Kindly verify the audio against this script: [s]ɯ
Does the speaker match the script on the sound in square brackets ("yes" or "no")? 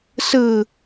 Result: yes